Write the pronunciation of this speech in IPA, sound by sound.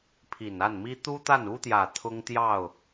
pʰi˨˩na˥˩nmi˥ t̪u˥t̪a˥˩nu˥t̪jä˨˩ t̪ʰʊ˥ŋt̪jɑ˥˩ʊ̯

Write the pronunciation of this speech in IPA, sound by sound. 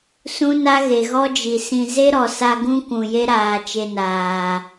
sũ˦na˦ ɣe˨ɣɔ˦d͡ʒi˨sĩ˧ ze˦ɾɔ˨sa˧ ɡũ˦kʷũ˨ je˦ɾaː˨ t͡ʃe˧naː˨

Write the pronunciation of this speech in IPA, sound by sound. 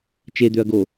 t͡ʃed̪øɐ̯ɡo

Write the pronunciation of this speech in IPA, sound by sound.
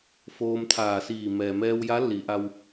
foː˧mt̪ʰaː˧˩siː˧˩ mɛː˩mɛː˧wja˧˥ li˩˧ʔa˧w

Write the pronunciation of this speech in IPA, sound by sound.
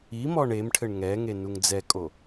imɔɳ emʈʰɘɳ ŋɛŋe nuŋd͡zɛkʼo

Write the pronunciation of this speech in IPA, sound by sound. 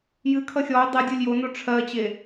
jɨkʰʌ xʲɔʊ̯ dˤɛ dʲolʲjono ʈ͡ʂʰɜt͡ɕe

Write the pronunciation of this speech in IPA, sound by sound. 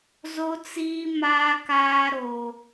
zo˦t͡siː˦ maː˦kaː˦ ɾo˦

